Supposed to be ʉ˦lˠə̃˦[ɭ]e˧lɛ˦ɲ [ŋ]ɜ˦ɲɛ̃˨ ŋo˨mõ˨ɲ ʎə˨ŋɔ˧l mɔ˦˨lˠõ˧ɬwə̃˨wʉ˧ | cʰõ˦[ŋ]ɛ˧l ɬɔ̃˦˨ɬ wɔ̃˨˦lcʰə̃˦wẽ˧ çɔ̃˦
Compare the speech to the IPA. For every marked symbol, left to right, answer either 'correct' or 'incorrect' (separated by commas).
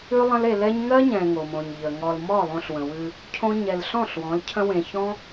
incorrect, correct, incorrect